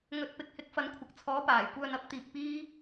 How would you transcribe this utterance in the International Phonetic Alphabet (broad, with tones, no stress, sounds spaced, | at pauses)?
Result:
ŋ ɵ˨˥ t̚ p ɪ˨˥ k̚ h ɪ˨˥ k̚ f ɐ˨˧ n kʷʰ ɐ˨ k̚ t͡sʰ ɔː˨˥ p aː˨˩ j kʷ œː˧ n ɐ˨˥ p̚ t̪ iː˨ k̚ p iː˥